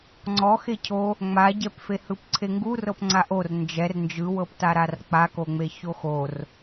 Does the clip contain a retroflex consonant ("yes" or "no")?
no